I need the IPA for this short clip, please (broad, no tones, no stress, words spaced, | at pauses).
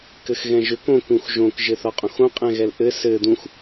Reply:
kɘxɣɛ̃ʒʏk õkũx ʒõkʒɘθɒqʼõx õ qʼɛ̃ɣɛlʔɘ sɘ d̪ũx